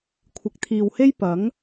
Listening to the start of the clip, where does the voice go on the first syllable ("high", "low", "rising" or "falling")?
rising